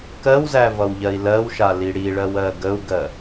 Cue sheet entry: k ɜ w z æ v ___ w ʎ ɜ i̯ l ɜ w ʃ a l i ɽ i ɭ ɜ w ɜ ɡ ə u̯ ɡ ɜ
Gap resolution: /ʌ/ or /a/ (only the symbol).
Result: ʌ